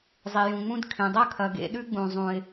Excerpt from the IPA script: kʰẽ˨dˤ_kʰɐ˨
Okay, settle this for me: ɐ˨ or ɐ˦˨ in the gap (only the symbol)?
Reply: ɐ˦˨